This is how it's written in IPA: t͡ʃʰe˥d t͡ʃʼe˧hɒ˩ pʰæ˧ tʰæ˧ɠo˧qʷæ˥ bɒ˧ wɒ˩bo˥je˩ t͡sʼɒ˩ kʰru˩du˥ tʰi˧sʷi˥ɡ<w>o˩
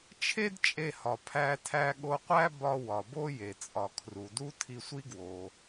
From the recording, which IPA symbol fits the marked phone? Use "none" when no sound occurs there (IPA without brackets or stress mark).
w